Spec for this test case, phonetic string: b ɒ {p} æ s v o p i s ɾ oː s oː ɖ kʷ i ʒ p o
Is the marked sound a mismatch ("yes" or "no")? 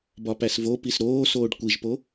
no